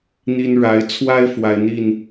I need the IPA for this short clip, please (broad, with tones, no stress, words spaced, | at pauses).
n̪i˦n ɻa˨˦ɪ̯t͡sʰwa˦ɪ̯ fwa˦ɪ̯n̪i˥˨n